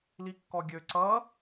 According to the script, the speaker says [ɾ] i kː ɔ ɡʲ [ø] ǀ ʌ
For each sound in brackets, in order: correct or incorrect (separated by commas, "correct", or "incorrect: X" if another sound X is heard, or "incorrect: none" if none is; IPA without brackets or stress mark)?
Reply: incorrect: l, correct